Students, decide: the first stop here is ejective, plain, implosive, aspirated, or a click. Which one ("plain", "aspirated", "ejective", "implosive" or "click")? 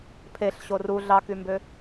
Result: aspirated